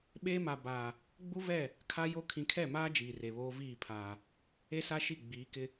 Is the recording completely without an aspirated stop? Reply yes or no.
no